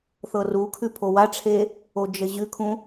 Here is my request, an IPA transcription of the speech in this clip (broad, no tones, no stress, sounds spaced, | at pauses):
θ ɤ r u kʰ ʉ pʰ o w a ʈ͡ʂʰ e | o d͡ʒ ə ʑ ʉ kʰ ũ